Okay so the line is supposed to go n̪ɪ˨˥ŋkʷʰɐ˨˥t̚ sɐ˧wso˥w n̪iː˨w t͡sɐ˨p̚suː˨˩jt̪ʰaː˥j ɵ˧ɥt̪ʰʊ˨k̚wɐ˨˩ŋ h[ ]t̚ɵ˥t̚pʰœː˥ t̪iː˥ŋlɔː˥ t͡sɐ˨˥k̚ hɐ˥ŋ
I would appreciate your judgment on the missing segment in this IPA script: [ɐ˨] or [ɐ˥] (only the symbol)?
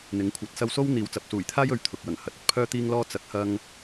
ɐ˨